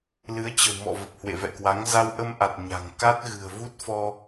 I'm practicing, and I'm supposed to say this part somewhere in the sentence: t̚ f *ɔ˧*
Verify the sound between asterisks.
correct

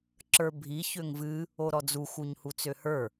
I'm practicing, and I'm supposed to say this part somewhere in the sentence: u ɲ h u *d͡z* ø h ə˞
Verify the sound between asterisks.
incorrect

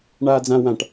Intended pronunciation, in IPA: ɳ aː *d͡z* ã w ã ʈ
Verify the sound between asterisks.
correct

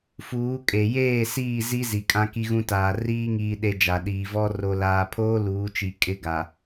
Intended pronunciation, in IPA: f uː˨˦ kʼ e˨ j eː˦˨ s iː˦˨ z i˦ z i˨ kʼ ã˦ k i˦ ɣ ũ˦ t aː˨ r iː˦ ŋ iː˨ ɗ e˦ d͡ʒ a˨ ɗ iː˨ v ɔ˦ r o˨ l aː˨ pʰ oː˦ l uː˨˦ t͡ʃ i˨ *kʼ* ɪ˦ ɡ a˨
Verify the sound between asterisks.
correct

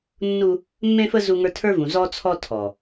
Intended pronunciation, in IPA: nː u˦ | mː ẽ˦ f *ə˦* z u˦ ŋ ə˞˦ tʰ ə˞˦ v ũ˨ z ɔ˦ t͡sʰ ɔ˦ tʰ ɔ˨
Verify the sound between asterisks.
correct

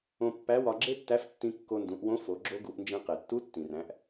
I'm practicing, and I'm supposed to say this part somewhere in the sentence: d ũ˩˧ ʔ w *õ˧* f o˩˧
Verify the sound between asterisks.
incorrect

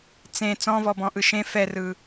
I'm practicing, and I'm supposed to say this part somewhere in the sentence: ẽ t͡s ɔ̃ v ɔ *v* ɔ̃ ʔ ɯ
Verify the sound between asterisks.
incorrect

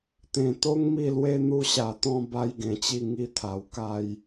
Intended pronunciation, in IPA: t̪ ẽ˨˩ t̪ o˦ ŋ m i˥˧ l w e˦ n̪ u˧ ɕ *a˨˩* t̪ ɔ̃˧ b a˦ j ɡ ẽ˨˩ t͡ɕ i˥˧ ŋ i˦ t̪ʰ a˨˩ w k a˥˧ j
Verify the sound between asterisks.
correct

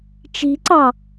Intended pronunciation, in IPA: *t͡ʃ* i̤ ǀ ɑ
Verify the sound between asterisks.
correct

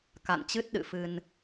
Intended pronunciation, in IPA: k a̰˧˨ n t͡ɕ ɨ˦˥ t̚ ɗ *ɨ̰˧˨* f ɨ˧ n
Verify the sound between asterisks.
correct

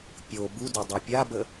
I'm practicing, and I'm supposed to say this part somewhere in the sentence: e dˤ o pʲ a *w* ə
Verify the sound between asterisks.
incorrect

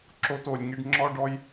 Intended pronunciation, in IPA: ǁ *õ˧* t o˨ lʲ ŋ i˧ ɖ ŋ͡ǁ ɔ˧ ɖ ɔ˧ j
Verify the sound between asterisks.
incorrect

